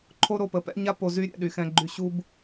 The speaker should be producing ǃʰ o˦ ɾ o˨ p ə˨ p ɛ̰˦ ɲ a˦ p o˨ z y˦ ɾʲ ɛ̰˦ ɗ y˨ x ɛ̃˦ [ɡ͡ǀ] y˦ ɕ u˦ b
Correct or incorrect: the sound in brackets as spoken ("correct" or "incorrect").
incorrect